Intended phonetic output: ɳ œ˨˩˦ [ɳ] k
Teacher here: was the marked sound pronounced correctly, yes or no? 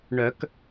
no